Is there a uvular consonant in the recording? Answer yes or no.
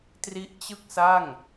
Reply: no